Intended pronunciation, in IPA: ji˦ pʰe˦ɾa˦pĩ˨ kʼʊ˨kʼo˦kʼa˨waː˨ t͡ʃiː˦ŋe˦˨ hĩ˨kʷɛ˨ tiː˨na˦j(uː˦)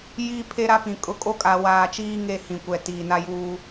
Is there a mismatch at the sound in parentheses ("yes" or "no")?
no